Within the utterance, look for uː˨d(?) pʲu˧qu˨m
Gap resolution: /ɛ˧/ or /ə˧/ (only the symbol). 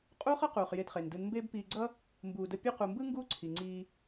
ə˧